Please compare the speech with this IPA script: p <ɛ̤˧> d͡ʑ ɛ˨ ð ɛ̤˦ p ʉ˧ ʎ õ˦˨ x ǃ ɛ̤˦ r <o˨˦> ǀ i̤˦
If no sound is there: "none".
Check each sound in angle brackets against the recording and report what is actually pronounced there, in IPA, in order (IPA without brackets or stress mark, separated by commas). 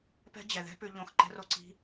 ɛ̤˦, o˦